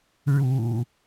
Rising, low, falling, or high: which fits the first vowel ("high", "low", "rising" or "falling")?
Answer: low